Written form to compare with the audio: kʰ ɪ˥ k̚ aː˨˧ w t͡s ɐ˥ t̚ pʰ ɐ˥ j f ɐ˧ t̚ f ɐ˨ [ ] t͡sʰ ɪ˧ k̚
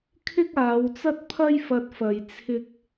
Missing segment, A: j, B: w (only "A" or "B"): A